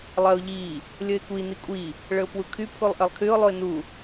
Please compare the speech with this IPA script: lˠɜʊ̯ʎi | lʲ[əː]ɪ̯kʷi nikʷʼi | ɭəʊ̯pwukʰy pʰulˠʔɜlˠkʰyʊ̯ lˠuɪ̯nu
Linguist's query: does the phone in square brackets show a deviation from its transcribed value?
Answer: yes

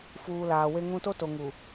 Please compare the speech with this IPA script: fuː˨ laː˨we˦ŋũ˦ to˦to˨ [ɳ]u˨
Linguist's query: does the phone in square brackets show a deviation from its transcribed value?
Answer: yes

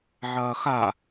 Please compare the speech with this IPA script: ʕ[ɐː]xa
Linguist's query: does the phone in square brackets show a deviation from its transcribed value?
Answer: no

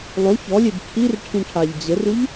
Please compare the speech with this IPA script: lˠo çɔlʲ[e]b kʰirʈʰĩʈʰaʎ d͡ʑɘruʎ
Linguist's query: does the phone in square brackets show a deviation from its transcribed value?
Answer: no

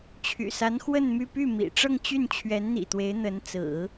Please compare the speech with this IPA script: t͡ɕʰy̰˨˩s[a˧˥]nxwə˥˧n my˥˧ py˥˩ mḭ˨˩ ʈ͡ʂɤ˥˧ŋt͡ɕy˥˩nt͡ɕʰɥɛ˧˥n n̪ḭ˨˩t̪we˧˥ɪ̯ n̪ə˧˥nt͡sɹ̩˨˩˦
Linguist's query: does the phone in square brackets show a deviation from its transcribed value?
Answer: no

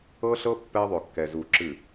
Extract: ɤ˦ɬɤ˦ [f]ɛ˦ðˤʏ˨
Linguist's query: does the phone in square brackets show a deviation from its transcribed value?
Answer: yes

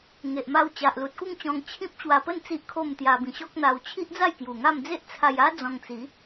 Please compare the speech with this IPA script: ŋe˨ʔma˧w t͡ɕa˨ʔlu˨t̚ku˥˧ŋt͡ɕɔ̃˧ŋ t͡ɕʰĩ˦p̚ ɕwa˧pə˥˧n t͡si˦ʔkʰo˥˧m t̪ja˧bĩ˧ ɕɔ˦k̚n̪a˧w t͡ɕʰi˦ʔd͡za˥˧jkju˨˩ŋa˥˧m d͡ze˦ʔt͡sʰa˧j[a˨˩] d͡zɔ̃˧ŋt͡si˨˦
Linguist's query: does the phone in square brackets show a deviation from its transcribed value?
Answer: yes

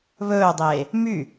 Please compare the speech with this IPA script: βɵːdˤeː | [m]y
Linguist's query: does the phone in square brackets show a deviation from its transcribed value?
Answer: no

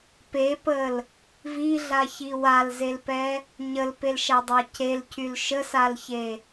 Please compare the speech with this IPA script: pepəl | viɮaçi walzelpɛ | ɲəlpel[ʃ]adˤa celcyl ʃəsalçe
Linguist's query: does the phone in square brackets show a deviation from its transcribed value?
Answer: no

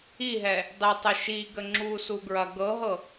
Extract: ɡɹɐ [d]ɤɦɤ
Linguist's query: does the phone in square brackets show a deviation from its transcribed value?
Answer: yes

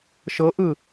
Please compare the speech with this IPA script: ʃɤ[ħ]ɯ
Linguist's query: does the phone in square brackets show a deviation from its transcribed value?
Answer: yes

